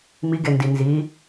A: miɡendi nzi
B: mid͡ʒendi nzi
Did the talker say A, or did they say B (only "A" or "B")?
A